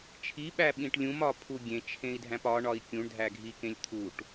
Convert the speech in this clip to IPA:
t͡ʃʰ i ɓ æ ɓ ĩ ʈ lʲ ũ m ɒ pʰ u ɡʲ ẽ t͡ʃʰ ẽ i̯ dʱ æ̃ p ɒ ɳ ɒ i̯ kʲ ũ ɳ dʱ æ ɡʱ i k ẽ lʲ t̪ʰ u ʈ

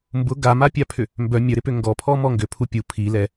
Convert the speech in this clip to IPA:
m b ʊ ɡ a m a pʲ a pʰ ʏ | m b œ mʲ œ ɾ ɪ p ʏ ŋ ɡ ɔ pʰ ɔ m ɔ ŋ ɡ ʏ pʰ u pʲ u pʰ i l ɛ

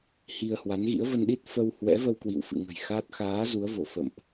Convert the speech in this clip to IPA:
h i˧ ə̯ h w a˨˦ n ɣ ḭ˧˥ ə̯ v ə˧ n ɗ i˦˥ t̚ f ə˧ w h w ɛ̰˧˥ v ə˧ w k w ḭ˧˨ w f ɨ̰˧˨ ŋ ə̤˨˩ j x a˦˥ t̚ x aː˨˦ z u˨˦ ə̯ v o˧˩ f ə̰˧˨ m ʔ

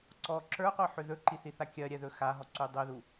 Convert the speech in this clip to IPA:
ǀ ɔ ǁ ə˞ qʷ ɜ ħ ʏ ð ɵ ǃ i θ i θ a kʲ ɜ ɾʲ ɛ ð ɵ x a ɦ ɔ ǀ u dˤ ɵ ð u

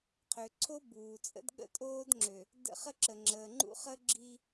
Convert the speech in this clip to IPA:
qʰ ø˨ ǀʰ o˦ b uː˨ t͡sʼ ə̰˦ d ɠ ə̰˦ tʼ oː˦ d ŋ͡ǁ ø˨ | d ə̰˦˨ χ ə˦ ǁ ə˨ ŋ͡ǁ əː˨ ŋ͡ǃ ṵ˦ χ ə˦ ɡ͡ǁ i˦

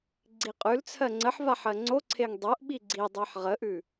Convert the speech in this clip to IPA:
ɡ͡ǀ i qʼ ʉ l t͡sʰ ɜ ŋ͡ǀ ə ħ v a ħ ɜ ŋ͡ǀ o ǀʰ e ŋ dˤ o ʔ ɓ i ɡ͡ǀ i dˤ ɜ ħ ʁ ə ʔ ʉ

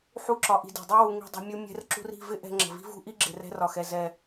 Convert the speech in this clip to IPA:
ħ u˦ ǁ ɒ˧ ʔ i̤˧ d i̤˨ dˤ i˦ w u˧ ŋ i̤˧ dˤ i̤˧ mʲ u˦ mʲ ɛ̤˧ r ǁ ṳ˧ r i̤˦˨ v ɪ˦ ʔ ɛ̤˧ ŋ͡ǁ ə̤˨ v i̤˦ v ṳ˦ ʔ i˦ ɡ͡ǁ ɪ˨ r ɛ̤˧ r ɒ˨ x ɛ˨ z ɛ˨

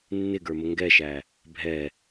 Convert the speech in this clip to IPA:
nː ɪ ɡ ə˞ m ə ŋ ɡ ɛ ʃ æ | bʱ ɛ

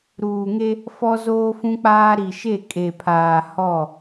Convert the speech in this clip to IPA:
ɾ uː˨ ŋ e˦ | f ɔ˦ z oː˦ f ũ˦ k͡p aː˦ ɾ i˨ ʃ e˦˨ kʼ e˨ pʰ aː˨ h ɔ˦˨

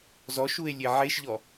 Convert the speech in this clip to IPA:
z ɔ ʃ u e̯ lʲ e ʕ e ʃ ʎ ɔ

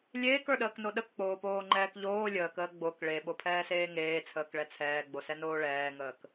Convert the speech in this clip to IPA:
lʲ eː k ə˞ ɗ əː k n o ɗ ə k k͡p oː p oː ŋ͡ǃ ɛː k ʎ oː lʲ əː k əː ɡ͡b o k ɭ e ɓ o pʰ ɛː s eː ŋ eː t͡sʰ əː k ɭ ɛ t͡sʰ ɛː ɡ͡b o s ɛ n oː ɭ ɛː ŋ əː k

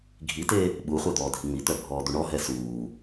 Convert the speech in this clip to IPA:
ɡʱ i t e | ɓ u χʷ ɛ d̪ ɔː dʱ i ŋ͡m i t̪ œ bʱ ɔː d̪ u ɳ ɔ ɦ ɛ s uː

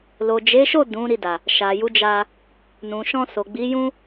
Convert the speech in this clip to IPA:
l o˨ d͡ʒ e˨˦ ʃ o˦˨ d ũ˨˦ ɾ i˧ d a˨ | ʃ a˨ j u˨˦ d͡ʒ a˧ | n ũ˨ ʃ ɔ̃˧ s o˨ ɡ͡b i˨˦ j ũ˦

